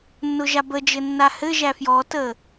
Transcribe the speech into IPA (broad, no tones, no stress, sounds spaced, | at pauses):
nː ʊ ʒ a b ə d͡ʒ ɘ nː a h ɘ ʒ æ f j ɔ t ə